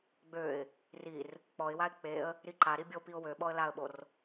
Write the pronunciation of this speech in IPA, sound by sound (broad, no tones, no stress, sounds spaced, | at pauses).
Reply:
ɡ͡b ø ɪ̯ | r i r | k͡p ɔ ɪ̯ w a ɪ̯ k͡p e ə̯ | ɾ i ǃ a ɾ i bʲ o p i ʊ̯ w ø ɓ ɔ ə̯ l a ə̯ ɓ o r